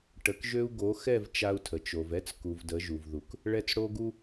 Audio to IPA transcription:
ʈ ə˨˦ k ʒ ø˦ u̯ ɡ o˨˦ x ɛ˦˨ v t͡ʃ a˦ u̯ tʰ ə˨ t͡ʃ o˨ v ɛ˦ t͡s k u˨ v d ə˨˦ ʒ u˨ v ð u˨ k | ɭ ɛ˦ t͡s ɽ o˦ ɡ u˦

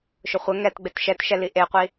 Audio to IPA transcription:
ʃ ʊ χʷ ə ŋ ɛ t ɡ͡b e t ʃ ɛ t ʃ ɛ l i ʔ e qʷ i

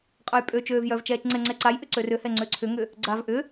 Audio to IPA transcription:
qʼ œ j pʼ ø t͡ʃ øː v j œ v t͡ʃ ɛː t͡ʃ ŋ͡ǀ ɛ ŋ͡ǀ ɛ ǀ a j ʔ ʏ ǀ ø r ʏ h ɛ ŋ͡ǀ ø ǀʰ ʏ ŋ ʏ | ɡ͡ǀ a v ʔ ʏ

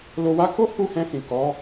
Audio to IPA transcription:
l o˧ w a˦ k o˦ h u˦˨ h ɛ̃˧ f ĩ˨ k ɔ˨˦

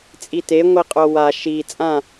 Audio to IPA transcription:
t͡sʼ i t e ŋʷ i qʼ o w a ʃ i t͡sʼ ã

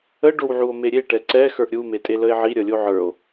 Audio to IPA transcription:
ə ɖ o w ʕ u o̯ m e ɾʲ e ʈ ɛ ǀ ɛ x ə˞ ʔ ɾʲ u m e tʼ e l ə e̯ ʕ i ɾʲ ʌ lʲ o ʕ ə˞ o̯

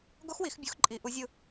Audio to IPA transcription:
ɡ o˦˥ x w i˨˩˦ x bʲ u˨˩˦ x ǃʼ i˨˩˦ ʔ u˨˦ zʲ ɯ˦˨

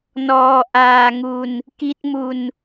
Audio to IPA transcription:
n ɔː˧ ʔ aː˧ ŋ u˧ n | k i˦˥ t̚ m u˧ n

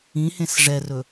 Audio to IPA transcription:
ĩ h ẽ s ʐ ɛ r ɵ

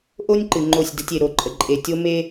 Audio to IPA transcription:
ʔ o˦ nʲ ǃ ɨ˨ ŋ͡ǃ o˦˨ sʲ d ə˦ tʲ e˨ ɾ o˨ ǃʼ ə˨ ǃʼ e˨ tʲ o˦ m e˦

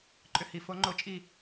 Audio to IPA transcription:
ǃʼ ʏ˧˥ h i˩˧ f o˧˥ ŋ͡ǃ o˧˥ t͡ʃʼ i˥˨

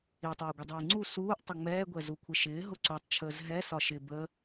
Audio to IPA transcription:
i tˤ ɛː ɡʷ ɪ dˤ iː ŋ͡ǀ u s uː ʔ tˤ ə ŋ͡m ɛː ɡʷ ɛ z u kʷʰ ɪ ʃ ɪː ɦ ʊ ǀ u tˤ t͡ʃʰ əː z ɦ ɛ s ɒ ʃ ɪ b ə

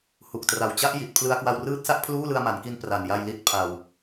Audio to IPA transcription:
h u˨˩ k̚ t r a˨˩ w t͡ɕ a˦˥ ʔ j i˨˩ t̚ pʰ l ɯ˧ a̯ k w a˧ w r ɯː˦˥ t̚ s a˥˩ ʔ pʰ l uː˥˩ l ɯ˧ a̯ m a˩˦ n k i˧ n p r a˨˩ n j a˧ j l i˦˥ t̚ pʰ a˧ w

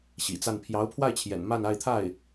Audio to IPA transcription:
ɕ ḭ˨˩ t͡s a˥˩ n pʰ j ɑ˧˥ ʊ̯ pʰ w a˥˩ ɪ̯ t͡ɕʰ j ɛ̰˨˩ n m a˥˧ n a˥˧ ɪ̯ t̪ʰ a˥˩ ɪ̯

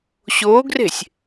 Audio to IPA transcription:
ɕ o ɡ r e̤ sʲ

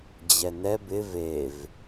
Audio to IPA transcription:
d͡ʑ ɛ n ɛ b ɪ v e v

